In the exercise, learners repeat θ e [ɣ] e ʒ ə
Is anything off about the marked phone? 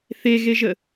no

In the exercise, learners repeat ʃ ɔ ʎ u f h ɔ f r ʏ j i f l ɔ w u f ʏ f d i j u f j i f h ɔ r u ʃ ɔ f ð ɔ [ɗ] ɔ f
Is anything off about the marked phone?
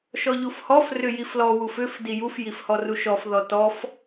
yes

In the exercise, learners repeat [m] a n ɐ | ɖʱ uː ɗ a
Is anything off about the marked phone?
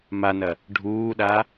no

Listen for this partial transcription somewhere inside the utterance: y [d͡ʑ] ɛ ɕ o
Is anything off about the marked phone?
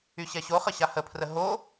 yes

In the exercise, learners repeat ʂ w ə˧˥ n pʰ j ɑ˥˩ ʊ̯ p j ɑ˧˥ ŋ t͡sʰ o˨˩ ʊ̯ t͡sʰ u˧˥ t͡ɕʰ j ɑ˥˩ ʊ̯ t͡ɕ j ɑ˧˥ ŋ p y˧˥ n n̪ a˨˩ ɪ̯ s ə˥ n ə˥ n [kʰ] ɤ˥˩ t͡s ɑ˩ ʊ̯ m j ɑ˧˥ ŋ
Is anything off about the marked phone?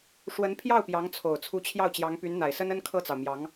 no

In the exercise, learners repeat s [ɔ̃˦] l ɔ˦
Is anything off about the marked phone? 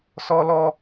yes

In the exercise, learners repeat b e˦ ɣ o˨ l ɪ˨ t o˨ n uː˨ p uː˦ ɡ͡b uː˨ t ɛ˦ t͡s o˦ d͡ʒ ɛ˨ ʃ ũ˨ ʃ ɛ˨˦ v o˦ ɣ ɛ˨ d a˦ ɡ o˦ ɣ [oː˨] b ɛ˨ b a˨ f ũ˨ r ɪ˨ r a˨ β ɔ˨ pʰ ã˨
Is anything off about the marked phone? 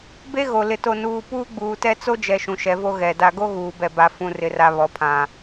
yes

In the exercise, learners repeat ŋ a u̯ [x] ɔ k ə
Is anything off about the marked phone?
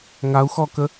no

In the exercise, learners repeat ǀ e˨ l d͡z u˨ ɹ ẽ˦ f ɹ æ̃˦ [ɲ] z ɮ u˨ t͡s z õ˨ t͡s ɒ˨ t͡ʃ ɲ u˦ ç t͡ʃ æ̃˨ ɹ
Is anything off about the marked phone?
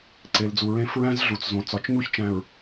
yes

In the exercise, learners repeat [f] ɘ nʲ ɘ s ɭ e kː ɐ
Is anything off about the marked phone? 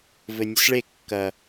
yes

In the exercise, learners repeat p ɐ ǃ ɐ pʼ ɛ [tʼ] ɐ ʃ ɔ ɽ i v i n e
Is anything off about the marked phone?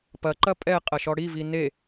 yes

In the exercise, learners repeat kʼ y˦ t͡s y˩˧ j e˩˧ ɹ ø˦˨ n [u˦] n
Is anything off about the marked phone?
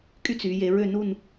yes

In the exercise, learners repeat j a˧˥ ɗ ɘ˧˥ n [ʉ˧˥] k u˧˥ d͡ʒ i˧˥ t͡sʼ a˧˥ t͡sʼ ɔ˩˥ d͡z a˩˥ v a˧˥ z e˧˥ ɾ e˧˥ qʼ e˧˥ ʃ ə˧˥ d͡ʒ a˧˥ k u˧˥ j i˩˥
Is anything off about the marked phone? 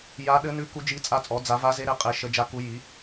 no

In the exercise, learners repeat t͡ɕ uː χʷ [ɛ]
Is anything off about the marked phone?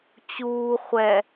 no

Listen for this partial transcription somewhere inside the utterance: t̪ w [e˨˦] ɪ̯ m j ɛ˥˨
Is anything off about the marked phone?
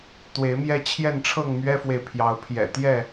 no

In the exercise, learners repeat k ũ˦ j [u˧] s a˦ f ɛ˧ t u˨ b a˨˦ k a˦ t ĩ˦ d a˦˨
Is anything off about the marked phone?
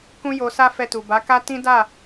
yes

